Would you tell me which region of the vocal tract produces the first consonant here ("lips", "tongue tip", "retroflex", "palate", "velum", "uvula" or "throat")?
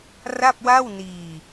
tongue tip